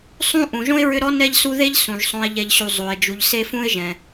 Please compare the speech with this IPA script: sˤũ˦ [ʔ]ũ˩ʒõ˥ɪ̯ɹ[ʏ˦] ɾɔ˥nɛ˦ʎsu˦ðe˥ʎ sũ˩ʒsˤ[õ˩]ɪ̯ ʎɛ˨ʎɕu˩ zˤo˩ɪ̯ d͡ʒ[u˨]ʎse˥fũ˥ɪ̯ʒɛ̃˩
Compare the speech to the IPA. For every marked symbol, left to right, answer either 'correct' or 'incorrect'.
correct, correct, incorrect: õ˨, correct

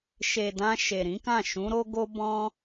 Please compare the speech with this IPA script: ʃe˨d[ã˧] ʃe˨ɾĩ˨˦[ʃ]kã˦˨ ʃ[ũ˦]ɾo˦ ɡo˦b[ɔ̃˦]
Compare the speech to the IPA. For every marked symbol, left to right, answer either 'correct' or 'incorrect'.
correct, incorrect: none, incorrect: ũ˨˦, correct

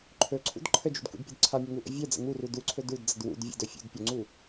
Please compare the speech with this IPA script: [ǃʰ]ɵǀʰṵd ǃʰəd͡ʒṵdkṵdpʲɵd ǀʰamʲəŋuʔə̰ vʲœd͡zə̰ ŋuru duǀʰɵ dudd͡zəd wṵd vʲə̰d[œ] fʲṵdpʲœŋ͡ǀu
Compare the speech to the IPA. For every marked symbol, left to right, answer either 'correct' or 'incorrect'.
correct, incorrect: ɵ

